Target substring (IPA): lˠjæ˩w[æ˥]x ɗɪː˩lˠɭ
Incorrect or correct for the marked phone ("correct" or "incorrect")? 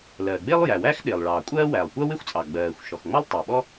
correct